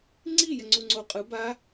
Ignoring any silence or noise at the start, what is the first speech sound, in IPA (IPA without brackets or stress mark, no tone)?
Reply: ŋ͡ǀ